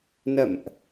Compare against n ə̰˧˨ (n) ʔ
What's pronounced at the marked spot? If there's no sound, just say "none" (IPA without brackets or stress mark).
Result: m